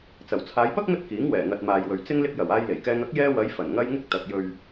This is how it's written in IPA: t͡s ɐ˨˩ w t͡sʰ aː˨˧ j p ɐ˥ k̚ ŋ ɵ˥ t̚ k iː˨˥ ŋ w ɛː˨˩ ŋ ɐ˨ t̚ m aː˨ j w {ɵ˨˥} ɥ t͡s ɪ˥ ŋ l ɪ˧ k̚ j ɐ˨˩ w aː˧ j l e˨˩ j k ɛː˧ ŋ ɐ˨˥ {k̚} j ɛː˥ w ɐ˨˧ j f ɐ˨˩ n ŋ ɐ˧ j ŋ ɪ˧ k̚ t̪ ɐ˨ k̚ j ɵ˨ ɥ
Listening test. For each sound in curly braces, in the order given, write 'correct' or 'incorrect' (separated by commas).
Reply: incorrect, correct